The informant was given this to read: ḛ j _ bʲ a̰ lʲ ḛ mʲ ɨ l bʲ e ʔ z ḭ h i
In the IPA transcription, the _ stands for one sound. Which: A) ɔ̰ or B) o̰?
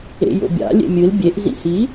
B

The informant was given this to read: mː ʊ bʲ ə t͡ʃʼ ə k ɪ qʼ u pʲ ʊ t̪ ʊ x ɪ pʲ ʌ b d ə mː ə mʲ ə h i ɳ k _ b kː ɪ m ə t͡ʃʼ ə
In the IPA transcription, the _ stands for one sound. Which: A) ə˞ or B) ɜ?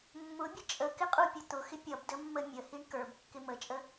A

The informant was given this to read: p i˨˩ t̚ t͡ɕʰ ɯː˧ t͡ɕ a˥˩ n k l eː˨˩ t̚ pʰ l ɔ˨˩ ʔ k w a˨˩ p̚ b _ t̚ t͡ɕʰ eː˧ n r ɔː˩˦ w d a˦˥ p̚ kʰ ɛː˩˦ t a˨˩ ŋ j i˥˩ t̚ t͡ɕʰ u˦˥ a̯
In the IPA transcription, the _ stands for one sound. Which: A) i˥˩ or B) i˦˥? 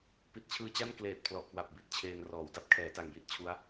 A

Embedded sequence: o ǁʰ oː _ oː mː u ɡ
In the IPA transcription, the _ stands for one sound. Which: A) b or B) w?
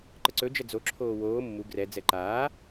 B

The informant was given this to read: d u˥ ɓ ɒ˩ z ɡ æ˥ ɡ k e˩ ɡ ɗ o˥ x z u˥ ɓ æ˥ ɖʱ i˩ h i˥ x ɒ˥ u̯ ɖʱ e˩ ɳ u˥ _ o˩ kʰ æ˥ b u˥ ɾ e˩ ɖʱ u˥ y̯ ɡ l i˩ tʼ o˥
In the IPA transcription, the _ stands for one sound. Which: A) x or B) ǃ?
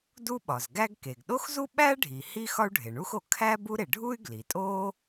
A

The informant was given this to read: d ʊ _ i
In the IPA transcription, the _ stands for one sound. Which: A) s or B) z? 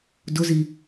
B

